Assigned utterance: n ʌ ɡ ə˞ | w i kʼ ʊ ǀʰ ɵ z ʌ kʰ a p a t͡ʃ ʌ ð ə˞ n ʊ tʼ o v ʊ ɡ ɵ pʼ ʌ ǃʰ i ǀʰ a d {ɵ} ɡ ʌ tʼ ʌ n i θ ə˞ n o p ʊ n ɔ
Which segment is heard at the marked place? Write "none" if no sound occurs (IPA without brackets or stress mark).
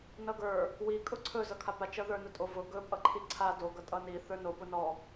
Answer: o